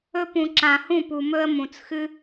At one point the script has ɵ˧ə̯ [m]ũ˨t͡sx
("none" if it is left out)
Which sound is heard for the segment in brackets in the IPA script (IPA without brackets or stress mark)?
m